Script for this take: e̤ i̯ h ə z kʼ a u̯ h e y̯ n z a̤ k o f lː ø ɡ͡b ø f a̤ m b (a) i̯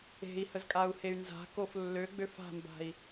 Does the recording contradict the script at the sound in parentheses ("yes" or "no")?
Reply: yes